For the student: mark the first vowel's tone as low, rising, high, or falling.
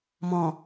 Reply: low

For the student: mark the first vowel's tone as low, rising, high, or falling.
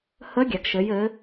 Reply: rising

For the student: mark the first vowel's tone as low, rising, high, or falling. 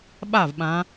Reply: falling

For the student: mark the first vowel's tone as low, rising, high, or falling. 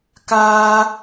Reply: high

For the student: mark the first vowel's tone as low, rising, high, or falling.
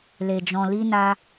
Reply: low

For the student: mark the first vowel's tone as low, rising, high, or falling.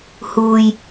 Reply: low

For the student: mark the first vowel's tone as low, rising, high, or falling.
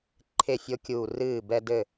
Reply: falling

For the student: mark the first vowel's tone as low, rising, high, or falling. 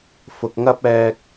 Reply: low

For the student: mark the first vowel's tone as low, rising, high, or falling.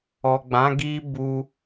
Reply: low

